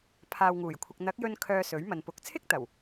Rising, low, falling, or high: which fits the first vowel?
low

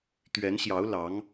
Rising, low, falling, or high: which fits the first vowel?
rising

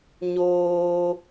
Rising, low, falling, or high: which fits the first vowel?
high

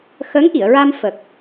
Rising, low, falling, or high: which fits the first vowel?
rising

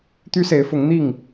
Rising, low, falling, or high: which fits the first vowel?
high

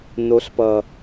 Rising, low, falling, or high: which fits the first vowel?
rising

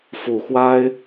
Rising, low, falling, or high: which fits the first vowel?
low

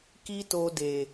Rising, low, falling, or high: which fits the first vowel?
high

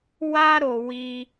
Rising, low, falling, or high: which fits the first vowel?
high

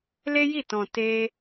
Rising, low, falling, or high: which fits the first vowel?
high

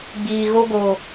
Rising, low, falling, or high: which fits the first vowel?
low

